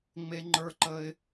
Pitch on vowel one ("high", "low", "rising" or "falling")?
high